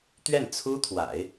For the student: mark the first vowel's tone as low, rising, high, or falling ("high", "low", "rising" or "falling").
falling